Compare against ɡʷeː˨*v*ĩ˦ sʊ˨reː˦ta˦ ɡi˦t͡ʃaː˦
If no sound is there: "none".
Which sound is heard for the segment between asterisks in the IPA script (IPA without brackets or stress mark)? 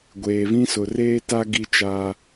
v